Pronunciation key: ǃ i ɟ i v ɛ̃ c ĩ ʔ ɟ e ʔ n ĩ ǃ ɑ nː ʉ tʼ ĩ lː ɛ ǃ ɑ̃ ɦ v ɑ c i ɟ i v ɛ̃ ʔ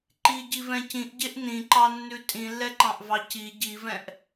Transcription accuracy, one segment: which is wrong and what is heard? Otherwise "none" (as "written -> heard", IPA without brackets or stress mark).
ɦ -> ʔ